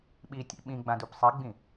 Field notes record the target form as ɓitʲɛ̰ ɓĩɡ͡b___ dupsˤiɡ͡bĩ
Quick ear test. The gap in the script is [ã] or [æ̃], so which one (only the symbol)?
ã